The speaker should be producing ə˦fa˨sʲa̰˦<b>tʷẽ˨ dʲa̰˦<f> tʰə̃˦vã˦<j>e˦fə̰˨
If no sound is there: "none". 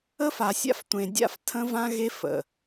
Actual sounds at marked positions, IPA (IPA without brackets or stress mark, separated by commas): f, f, ɣ